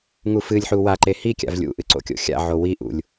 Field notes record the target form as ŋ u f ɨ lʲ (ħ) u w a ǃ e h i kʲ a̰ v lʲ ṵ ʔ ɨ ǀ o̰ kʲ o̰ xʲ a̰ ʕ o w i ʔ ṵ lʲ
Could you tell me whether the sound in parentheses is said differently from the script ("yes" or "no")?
no